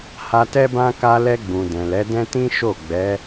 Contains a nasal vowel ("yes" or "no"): yes